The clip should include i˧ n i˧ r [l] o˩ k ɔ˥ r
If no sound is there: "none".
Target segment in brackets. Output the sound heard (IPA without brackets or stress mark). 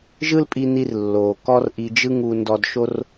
lː